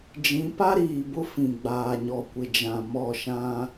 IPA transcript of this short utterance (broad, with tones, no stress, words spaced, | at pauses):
d͡ʒĩ˨˦ pa˦ɾiː˨ bʊ˦fĩ˨ ɡ͡baː˨ɲɔ˨kʷɪ˨d͡ʒã˨ mɔ˦˨ʃã˦